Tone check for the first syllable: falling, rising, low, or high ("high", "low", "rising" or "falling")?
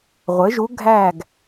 rising